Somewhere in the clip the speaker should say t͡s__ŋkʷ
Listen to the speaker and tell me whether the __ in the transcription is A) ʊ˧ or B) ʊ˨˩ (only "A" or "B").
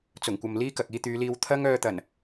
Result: B